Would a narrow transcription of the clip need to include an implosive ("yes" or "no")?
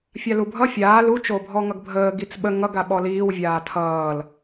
yes